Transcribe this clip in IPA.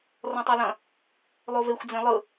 r ɔ̃ tˤ ɜ l ɐ̃ | lˠ o v e xʷ d͡z ẽ lˠ ɯ

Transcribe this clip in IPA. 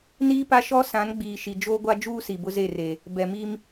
n iː˦ p a˦ ʃ ɔ˦ s ã˨˦ n ɡ͡b iː˨ ʃ i˨ d͡ʒ oː˦ ɡʷ a˦ d͡ʒ uː˦ s i˨ b ʊ˦ z e˦˨ r eː˨ | b ɛ˨ m iː˦ m

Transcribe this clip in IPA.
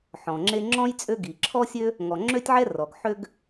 ħ ɔ̃˩ ŋ͡ǁ e˥ ŋ͡ǁ ɔ̃˥ j t͡sʼ ø˥ ɡ i˩ ǁʰ ɔ˥ sʲ ø˥ | ŋ ɔ˩ ŋ͡ǁ ø˥ tʲ ʕ ɛ˥ r ɔ˩ ɡ ħ ø˥ ɡ

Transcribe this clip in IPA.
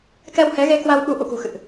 k ɛ˧ w h ɛ˨˦ ɣ e˧ k w a˧ w ɓ u˨˦ ʔ ṵ˧˨ k ṳ˨˩ x ɨ̰˧˨ ʔ

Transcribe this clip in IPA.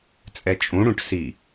t͡sʼ ɛ t͡ʃʼ ũ ɽ ũ ʈ s i

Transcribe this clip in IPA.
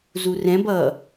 z u r ɛ̃ b ʌ

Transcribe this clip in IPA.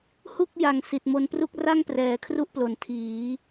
h u˥˩ k̚ j a˨˩ ŋ s i˨˩ t̚ m o˧ n p r u˥˩ k̚ r a˥˩ ŋ p r ɛː˩˦ kʰ r u˥˩ ʔ p l o˨˩ n tʰ iː˩˦

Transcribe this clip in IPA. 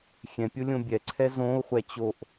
xʲ ɛ̃ pʲ o lʲ õ bʲ ɛ ǀʰ ɛ z õ u̯ χʷ ɛ t͡ɕ o ʔ

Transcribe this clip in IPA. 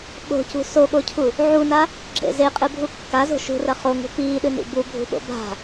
ɓ o̤ c ṳ s o ɠ o cʰ u | ʕ u n a | ɡ͡ǁ ḛ z e qʼ ɨ bʱ u kː a z o̤ ʃ ṳ r ɐ χ o ŋ ṳ p iː ɗ ɨ n ḭ b u bʱ ṳ ɓ o̰ b a̤

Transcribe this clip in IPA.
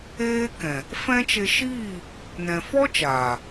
eː˦ k ɛ̃˨ | f ɛ̃˦ t͡ʃ e˧ ʃ iː˦˨ | n ɛ̃˨ f ɔ˦ t͡ʃ aː˨

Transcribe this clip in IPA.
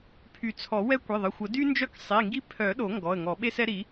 pʰ y˨˩˦ t͡sʰ ɔ˨˩˦ w ɛ˦ kʷ e˩˧˩ ðˤ ə˩˧˩ xʷ ə˨˩˦ d y˦ n d͡ʒ œ˦ k sˤ i˩˧˩ ŋ ɡ i˦ pʰ œ˨˩˦ ɗ o˨˩˦ ŋ ɡ ɔ˩˧˩ ə̯ ŋ ɔ˨˩˦ ɓ e˦ s ɛ˦ ɾ i˨˩˦

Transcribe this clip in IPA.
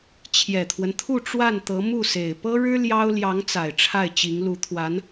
t͡ɕʰ j ɛ˨˩ t̪ʰ w ə˦ n t̪ʰ u˥˧ ʈ͡ʂ w a˥˩ n t̪ ɤ˧˥ m u˥˩ s e˨˩ ɪ̯ p ɤ˥ ɻ ɻ̩˥ l j ɑ˥ ʊ̯ l j ɑ˧˥ ŋ t͡s a˨˩ ɪ̯ ʈ͡ʂʰ a˥˩ ɪ̯ t͡ɕ i˧˥ ŋ l u˧˥ t̪ʰ w a˧˥ n

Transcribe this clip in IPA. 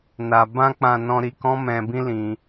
n a˨ b ã˧ k͡p ã˨ n ɔ̃˧ ɾ i˧ k ɔ̃˦ m ɛ̃˧ b ĩ˦ l ĩ˧

